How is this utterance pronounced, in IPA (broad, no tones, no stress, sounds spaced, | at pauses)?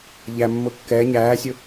ʎ æ mː ʊː kː ɛː ɲ æː sʲ ʊ